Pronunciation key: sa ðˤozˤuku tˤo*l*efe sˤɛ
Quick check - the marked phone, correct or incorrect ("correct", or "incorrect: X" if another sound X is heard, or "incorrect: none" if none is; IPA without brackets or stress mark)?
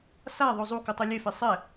incorrect: lʲ